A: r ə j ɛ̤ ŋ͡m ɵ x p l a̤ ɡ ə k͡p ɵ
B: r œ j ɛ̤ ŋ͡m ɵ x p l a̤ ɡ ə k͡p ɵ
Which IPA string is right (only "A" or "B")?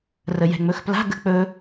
A